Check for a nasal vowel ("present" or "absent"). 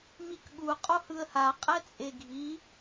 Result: absent